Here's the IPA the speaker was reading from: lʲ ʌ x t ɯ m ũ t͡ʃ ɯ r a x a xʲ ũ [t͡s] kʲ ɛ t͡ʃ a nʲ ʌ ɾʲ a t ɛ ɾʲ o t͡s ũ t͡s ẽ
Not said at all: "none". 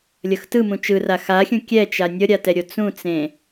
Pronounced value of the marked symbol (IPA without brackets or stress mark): none